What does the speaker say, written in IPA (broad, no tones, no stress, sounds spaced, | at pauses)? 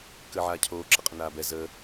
k əː ʕ aː cʰ oː ǁ ə qʼ ə n aː b ɛ z əː